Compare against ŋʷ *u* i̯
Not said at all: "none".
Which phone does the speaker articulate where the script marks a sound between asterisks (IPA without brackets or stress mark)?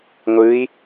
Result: ɯ